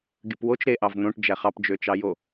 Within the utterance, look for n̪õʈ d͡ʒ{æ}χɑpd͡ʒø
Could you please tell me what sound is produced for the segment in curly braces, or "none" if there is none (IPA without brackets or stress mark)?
æ